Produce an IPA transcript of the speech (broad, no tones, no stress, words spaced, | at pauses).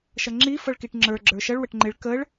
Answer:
ʃʌŋ͡ǁi fʌɭkiʈŋ͡ǁə˞ ɡ͡ǁə˞ʃʌɭ wəʈŋ͡ǃɪɭ kəɭ